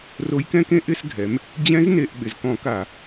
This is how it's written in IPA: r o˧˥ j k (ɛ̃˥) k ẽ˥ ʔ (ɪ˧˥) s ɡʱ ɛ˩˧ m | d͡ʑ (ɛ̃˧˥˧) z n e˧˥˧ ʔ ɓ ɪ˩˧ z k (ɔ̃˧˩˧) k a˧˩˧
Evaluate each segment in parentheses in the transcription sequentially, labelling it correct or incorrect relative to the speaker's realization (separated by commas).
correct, incorrect, incorrect, correct